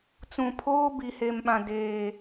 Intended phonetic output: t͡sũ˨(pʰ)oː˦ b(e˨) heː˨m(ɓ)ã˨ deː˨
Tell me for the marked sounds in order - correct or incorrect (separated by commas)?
correct, incorrect, correct